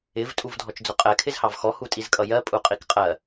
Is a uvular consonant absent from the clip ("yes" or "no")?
no